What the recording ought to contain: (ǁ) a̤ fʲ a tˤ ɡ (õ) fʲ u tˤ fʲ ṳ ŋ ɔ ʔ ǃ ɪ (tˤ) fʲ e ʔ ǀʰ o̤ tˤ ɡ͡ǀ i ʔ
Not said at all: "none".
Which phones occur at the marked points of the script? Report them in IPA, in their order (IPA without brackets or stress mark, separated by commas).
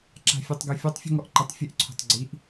ǁ, o, tˤ